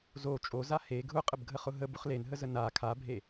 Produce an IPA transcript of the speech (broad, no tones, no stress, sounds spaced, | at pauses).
z o t͡ʃʼ o z a h e ɡʱ ʊ qʼ ə b ɡʱ ə χ ʊ ɦ ə b ʊ χ l e n ɦ ə z ə n a kʰ a bʱ e